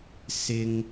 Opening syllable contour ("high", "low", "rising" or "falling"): high